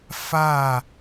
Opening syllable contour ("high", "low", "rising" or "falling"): falling